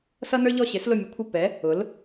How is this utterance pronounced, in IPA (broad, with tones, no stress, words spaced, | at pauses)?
sʌ˦nə˞˦ʎɔ˦˨ ɕɪ˨˥slʊ˦˨mʲu˨˥kʷʰɪ˦˨ pɛ˨˥ | ʊ˨˥l